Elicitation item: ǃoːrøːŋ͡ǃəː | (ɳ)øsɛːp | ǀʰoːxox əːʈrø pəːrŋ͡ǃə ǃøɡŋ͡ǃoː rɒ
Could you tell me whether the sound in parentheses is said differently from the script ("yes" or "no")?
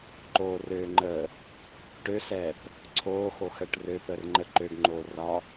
yes